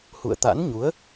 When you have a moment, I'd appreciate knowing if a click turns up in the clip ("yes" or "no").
no